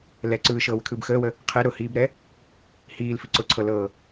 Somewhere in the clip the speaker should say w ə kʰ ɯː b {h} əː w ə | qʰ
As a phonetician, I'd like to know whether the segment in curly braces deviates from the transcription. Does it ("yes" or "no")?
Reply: yes